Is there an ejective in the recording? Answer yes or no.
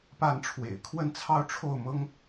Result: no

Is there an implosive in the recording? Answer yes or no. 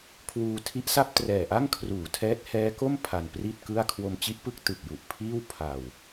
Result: no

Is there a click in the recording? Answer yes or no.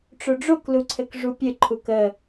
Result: yes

